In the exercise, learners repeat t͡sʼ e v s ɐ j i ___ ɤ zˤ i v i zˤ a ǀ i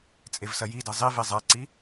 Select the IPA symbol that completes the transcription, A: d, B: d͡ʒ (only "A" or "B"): A